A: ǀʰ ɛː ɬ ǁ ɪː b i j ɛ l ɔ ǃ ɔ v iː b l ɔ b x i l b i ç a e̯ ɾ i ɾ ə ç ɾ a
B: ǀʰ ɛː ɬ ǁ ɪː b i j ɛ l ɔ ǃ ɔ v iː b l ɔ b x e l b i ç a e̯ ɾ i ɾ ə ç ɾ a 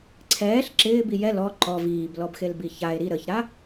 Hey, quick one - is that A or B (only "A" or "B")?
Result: B